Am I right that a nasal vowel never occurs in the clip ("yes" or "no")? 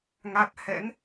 yes